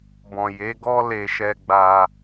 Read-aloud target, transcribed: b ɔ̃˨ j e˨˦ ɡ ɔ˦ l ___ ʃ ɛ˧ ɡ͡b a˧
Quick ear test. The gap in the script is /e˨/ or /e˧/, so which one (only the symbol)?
e˧